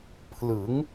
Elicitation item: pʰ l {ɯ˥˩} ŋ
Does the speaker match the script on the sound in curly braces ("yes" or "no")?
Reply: no